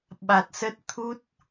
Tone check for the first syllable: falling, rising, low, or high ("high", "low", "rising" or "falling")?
low